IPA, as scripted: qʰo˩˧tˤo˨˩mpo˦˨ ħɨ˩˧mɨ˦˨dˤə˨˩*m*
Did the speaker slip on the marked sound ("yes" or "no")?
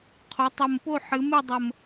no